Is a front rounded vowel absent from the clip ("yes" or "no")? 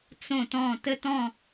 yes